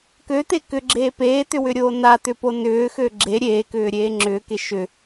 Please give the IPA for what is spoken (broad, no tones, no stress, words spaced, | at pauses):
køt̪e kʏɡ͡ǁeː peːt̪ʏwʏɾʲoː nat̪ʏpo nʏːxø ɡ͡ǁe ɾʲeːkʏːɾʲeː ŋ͡ǁʏːke ʃʏ